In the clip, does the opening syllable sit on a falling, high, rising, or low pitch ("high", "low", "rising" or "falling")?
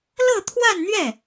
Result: falling